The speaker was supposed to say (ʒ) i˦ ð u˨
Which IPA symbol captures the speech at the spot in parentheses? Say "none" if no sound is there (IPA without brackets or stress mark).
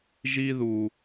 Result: ʒ